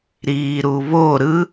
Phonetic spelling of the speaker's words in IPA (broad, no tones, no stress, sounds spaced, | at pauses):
ɾ iː ɾ u β o ɾ ɯ